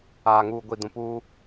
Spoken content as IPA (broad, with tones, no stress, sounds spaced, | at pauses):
aː˨ ŋ uː˨ ɡʷ i˨ d ũ˨ p uː˦